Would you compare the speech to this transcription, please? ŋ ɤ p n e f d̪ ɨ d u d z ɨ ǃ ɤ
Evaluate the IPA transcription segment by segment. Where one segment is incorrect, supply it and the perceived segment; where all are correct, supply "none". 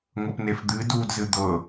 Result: ǃ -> d̪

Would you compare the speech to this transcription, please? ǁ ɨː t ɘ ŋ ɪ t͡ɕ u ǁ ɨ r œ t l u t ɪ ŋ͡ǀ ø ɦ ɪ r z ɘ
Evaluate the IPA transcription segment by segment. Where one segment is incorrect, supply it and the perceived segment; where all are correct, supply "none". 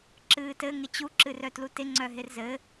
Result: ø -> œ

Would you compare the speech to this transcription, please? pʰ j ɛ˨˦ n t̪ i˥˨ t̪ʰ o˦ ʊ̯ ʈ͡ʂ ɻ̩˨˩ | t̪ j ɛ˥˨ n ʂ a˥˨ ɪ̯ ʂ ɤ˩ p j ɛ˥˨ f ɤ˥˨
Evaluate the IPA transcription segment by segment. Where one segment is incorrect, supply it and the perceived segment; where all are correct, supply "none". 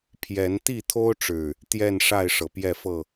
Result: none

